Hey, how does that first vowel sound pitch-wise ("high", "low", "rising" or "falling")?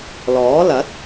rising